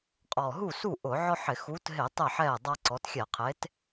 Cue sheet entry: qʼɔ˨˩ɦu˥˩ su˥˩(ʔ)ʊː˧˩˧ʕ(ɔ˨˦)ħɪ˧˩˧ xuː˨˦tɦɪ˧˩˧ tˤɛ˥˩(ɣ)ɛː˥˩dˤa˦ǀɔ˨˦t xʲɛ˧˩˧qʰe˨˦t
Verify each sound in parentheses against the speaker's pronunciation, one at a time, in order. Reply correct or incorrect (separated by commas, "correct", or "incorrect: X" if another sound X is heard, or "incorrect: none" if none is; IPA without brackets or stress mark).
correct, incorrect: ɔ˦, incorrect: ħ